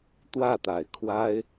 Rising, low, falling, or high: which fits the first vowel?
falling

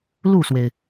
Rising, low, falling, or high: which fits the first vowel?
falling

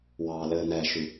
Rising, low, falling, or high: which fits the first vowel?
low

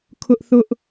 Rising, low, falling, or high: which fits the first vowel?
high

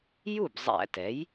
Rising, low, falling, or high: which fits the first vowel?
falling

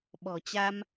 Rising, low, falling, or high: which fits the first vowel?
low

